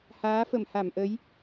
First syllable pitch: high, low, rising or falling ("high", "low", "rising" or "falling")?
rising